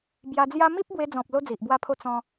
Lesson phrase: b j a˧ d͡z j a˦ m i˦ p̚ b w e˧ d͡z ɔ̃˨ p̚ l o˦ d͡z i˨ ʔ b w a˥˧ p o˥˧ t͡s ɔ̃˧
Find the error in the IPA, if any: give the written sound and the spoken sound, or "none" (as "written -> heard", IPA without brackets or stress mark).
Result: p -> pʰ